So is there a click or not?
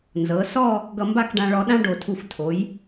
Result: no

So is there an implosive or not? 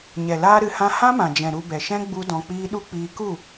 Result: yes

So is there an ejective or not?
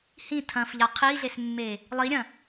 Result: no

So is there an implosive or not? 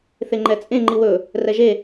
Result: no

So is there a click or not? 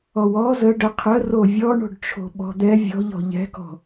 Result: no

